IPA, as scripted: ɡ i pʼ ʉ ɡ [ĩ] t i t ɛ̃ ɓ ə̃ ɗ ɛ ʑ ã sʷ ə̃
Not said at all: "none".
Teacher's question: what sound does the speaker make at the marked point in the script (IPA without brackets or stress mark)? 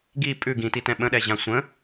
ĩ